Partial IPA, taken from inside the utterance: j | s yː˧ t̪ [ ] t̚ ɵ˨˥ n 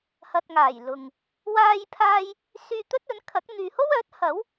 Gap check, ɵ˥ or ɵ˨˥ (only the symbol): ɵ˥